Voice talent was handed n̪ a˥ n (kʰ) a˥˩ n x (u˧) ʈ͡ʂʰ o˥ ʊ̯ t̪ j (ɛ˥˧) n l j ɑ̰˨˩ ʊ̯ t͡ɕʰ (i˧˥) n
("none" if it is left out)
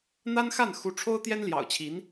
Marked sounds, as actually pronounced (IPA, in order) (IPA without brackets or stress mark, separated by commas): x, u˧˥, ɛ˥, i˧˥